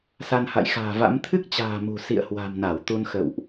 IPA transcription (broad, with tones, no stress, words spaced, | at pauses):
sa˧nha̰˧˨jxa̤ː˨˩va̰˧˥m t̪ʰɨ˦˥k̚t͡ɕa̤ː˨˩ mṳ˨˩sḭ˧˨ə̯ hwa̤˨˩mna˧˩w t̪u˧nxə̰˧˨wʔ